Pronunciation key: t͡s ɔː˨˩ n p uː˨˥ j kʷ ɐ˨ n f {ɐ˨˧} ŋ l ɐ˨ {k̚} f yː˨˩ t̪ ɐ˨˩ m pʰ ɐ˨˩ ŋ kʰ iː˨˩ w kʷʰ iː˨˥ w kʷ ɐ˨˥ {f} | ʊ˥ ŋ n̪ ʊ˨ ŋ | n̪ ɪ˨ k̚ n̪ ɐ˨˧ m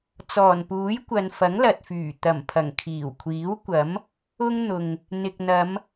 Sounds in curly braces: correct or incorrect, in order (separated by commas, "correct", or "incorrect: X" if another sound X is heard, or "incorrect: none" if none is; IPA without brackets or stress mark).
incorrect: ɐ˨˥, incorrect: t̚, incorrect: m